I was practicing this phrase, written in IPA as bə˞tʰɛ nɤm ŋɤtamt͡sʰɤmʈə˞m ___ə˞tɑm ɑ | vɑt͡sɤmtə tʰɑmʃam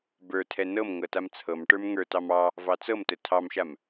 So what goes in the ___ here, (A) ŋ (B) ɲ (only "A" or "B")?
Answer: A